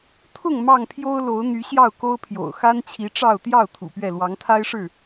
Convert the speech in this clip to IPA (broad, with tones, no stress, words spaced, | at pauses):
t̪ʰʊ˥˨ŋ mɑ˥˨ŋpʰjo˦ʊ̯lo˨˦ʊ̯ n̪y˨˦ɕjɑ˥˨ʊ̯ko˦ʊ̯pʰjo̰˨˩ʊ̯ xa˦nt͡ɕʰi˨˦ʈ͡ʂɑ˥˨ʊ̯ t̪jɑ˥˨ʊ̯ t̪ʰṵ˨˩pɥɛ˥˨ lwɑ˨˦ŋt̪ʰa˦ɪ̯ʂɻ̩˥˨